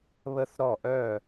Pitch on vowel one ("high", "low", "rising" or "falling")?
high